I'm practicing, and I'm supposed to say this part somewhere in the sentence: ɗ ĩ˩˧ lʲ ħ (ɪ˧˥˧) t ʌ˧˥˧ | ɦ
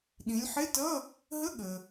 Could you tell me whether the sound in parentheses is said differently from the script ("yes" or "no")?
no